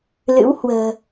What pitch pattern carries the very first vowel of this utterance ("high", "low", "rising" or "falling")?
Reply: rising